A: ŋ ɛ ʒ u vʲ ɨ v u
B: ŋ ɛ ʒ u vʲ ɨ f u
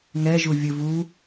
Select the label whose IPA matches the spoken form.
A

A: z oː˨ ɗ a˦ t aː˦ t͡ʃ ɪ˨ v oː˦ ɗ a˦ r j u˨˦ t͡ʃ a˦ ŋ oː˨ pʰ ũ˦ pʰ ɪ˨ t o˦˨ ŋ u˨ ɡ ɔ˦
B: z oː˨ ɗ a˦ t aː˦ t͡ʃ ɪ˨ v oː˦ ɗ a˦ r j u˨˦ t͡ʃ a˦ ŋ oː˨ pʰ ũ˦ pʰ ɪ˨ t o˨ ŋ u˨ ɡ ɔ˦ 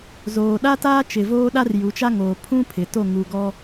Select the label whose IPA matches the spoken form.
A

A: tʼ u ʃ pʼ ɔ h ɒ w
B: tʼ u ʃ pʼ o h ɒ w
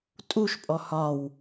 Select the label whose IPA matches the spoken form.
A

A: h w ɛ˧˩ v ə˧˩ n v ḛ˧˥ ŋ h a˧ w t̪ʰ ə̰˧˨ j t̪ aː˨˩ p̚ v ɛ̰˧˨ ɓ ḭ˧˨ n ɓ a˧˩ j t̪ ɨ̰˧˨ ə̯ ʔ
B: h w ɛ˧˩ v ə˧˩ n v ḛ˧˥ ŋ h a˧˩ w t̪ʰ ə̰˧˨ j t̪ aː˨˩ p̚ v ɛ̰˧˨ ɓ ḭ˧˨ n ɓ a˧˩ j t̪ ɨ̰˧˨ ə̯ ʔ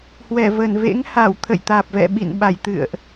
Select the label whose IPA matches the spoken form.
B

